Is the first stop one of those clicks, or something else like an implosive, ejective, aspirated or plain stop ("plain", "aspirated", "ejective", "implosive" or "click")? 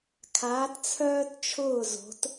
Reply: aspirated